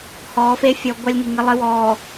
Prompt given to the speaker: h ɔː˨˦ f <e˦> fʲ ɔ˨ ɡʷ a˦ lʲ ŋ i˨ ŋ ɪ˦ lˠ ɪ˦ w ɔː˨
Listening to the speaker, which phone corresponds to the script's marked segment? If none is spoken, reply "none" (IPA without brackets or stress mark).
e˦